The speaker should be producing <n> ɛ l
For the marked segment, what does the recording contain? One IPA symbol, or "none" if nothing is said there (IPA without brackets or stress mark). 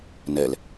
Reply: n